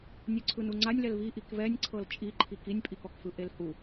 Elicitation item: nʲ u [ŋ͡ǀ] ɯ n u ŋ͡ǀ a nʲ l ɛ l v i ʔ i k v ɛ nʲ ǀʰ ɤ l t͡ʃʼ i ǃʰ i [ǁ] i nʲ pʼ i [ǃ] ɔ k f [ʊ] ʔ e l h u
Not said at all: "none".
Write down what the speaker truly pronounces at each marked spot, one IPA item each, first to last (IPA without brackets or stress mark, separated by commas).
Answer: ǀʰ, k, k, ɯ